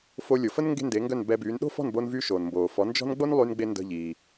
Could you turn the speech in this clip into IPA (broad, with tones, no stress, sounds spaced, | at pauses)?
f o˧ lʲ o˩ f ə˥ n ŋ ɡ e̤˥ n d e˩˥ ŋ ɡ œ˥˩ n b ɛ˧ b yː˩˥ n ɗ o̤˥ f ɔ̤˥˩ n b o˧ n v yː˧ ʃ oː˩ n m b oː˩ f ɔ˩˥ n d͡ʒ ɔ̤˥ n ɡ͡b o˥ n lˠ yː˧ n ɡ͡b e˧ n d ə̤˧ ʎ iː˩